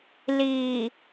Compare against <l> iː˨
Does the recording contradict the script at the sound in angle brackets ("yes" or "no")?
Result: no